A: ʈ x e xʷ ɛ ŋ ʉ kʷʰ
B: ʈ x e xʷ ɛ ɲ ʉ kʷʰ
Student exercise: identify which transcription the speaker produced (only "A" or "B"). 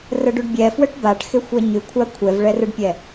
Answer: B